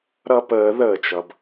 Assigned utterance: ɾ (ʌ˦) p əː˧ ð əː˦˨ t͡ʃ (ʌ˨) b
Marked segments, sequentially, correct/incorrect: correct, correct

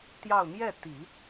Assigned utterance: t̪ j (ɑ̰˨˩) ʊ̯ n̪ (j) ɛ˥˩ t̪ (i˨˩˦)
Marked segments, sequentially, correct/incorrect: incorrect, correct, correct

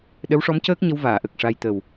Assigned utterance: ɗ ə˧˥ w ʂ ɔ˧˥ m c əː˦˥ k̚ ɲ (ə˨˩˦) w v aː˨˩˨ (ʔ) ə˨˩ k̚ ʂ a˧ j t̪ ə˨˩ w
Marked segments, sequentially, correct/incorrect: incorrect, correct

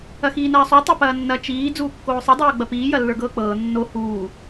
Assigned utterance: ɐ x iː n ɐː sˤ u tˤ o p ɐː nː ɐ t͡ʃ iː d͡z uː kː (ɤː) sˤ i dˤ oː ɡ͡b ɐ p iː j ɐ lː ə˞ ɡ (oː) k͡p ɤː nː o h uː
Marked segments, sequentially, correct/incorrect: incorrect, incorrect

